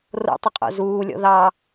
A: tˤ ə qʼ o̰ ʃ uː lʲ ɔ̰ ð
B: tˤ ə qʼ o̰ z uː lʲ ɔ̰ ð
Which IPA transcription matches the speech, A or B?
B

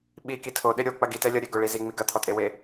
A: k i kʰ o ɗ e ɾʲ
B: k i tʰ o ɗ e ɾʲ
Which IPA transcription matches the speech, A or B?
B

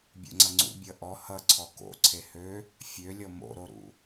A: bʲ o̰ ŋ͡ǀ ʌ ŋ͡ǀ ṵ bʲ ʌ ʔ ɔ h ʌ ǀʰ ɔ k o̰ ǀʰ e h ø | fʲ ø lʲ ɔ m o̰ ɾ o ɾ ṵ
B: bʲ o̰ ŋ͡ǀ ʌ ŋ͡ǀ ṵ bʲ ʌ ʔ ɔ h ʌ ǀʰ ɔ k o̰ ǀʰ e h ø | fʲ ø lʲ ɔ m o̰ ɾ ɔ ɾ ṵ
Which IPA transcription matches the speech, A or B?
A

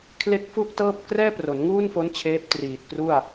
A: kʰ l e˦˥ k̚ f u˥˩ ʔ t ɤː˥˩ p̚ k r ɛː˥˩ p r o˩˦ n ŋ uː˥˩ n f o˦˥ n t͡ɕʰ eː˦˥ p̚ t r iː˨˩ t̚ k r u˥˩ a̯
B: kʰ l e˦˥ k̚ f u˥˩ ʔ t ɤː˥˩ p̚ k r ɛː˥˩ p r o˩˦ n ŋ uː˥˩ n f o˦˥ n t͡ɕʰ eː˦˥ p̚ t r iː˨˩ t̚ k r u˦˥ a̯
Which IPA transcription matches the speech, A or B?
A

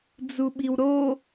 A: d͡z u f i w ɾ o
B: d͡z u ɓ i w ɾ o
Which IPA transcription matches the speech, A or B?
B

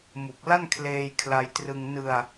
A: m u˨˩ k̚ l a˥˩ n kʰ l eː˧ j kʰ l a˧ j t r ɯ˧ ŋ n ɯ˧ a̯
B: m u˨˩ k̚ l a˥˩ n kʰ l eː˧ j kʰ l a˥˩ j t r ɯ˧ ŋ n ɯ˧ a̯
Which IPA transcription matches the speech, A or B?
A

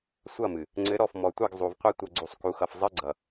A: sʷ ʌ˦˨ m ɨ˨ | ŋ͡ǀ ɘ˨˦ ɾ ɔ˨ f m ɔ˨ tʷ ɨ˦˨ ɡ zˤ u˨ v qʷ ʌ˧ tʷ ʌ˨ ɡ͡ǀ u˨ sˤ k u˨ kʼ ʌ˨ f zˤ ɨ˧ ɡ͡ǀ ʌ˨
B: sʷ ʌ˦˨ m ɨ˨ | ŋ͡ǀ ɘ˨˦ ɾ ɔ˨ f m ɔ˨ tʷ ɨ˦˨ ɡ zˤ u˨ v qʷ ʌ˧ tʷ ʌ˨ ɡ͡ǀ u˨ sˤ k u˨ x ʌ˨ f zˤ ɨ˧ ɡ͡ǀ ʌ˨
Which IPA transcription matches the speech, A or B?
B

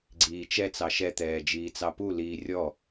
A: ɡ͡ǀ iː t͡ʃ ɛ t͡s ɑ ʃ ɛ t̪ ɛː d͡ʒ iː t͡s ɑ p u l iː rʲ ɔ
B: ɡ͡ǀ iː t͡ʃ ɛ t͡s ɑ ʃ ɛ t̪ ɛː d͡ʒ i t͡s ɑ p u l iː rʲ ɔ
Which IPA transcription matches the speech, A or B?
A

